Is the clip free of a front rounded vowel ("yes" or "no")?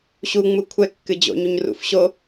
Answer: yes